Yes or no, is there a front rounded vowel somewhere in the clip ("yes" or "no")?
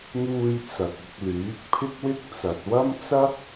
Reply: yes